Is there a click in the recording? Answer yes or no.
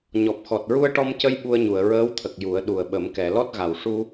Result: no